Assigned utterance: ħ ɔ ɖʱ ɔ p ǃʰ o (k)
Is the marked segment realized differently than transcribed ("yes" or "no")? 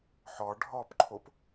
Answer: yes